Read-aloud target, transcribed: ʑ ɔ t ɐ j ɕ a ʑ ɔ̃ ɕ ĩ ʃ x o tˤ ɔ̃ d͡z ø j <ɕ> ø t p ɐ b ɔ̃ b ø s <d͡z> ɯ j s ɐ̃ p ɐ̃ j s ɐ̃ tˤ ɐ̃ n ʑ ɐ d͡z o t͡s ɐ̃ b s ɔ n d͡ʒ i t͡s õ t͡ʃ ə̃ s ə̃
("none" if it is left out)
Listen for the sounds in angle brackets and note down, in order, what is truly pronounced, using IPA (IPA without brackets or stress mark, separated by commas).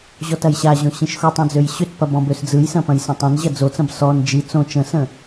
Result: ɕ, d͡z